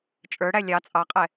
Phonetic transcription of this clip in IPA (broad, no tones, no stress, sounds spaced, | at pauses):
t͡ʃʼ ə˞ ɽ æ lʲ ɑ t͡sʼ ɑ qʼ ɛ